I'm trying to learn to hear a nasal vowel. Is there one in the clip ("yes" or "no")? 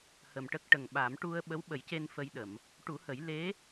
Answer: no